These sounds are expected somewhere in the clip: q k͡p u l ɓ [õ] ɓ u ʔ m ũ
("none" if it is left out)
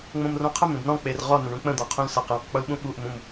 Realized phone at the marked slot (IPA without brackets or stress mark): ũ